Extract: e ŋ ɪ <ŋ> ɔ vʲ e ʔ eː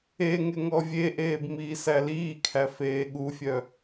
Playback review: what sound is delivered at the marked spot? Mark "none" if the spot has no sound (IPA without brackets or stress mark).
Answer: ŋ